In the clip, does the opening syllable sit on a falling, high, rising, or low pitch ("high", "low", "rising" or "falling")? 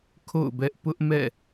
falling